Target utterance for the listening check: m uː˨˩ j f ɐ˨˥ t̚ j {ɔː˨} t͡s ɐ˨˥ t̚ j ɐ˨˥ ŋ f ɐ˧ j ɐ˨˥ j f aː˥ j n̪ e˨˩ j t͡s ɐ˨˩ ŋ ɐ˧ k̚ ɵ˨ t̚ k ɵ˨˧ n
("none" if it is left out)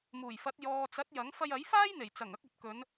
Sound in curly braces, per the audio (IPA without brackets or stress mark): ɔː˨